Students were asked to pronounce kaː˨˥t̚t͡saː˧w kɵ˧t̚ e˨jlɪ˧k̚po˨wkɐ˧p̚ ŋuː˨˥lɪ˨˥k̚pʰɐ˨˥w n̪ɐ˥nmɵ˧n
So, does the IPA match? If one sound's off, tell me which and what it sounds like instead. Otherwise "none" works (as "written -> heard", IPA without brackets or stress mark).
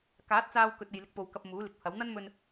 ŋ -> m